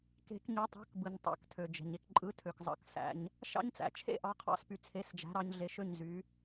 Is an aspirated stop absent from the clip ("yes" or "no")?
no